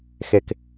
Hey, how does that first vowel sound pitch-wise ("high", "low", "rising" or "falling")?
low